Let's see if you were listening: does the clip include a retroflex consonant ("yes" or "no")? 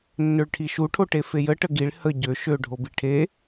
yes